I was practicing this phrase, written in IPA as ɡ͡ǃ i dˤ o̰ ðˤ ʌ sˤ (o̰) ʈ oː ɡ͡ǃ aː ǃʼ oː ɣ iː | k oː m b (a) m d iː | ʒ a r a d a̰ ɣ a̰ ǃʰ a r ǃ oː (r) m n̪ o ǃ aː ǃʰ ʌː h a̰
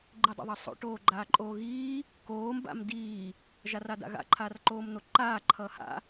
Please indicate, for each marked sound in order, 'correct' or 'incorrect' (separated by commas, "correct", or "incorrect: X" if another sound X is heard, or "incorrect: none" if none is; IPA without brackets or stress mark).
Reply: correct, incorrect: a̰, incorrect: none